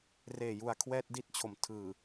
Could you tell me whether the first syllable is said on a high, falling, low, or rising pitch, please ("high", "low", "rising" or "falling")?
low